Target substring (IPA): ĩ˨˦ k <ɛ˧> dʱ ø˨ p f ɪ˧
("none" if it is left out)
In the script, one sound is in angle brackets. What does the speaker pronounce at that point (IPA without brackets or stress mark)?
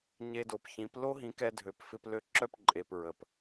ɛ˧